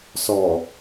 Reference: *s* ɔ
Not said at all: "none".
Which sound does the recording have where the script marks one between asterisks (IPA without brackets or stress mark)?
s